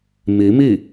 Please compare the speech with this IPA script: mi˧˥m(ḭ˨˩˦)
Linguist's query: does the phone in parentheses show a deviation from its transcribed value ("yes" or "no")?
yes